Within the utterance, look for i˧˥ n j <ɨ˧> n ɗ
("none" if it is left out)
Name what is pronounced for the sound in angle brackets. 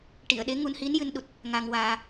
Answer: ɨ˧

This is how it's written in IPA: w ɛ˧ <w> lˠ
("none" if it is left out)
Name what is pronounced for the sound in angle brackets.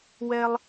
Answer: none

